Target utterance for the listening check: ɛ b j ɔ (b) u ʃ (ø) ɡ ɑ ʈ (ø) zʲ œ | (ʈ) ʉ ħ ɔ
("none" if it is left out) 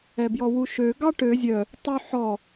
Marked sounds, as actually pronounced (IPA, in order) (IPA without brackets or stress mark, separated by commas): w, ø, ø, tˤ